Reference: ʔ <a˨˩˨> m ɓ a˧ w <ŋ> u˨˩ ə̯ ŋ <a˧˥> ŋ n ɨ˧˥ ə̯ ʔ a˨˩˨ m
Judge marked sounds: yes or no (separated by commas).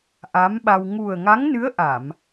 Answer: no, yes, yes